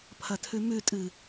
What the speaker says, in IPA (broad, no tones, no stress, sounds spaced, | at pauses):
pʰ ɐ tʰ ʉ m ʉ tʼ ɨ